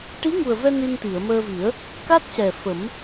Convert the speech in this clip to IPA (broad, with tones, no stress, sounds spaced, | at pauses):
ʈ i˧˥ ŋ u˨˩ ə̯ v ɛ˧ n i˧ n t̪ i˨˩˨ ə̯ m əː˧ v i˨˩˦ ə̯ | k a˦˥ t̚ c ɛ˨˩ f ə˨˩˦ m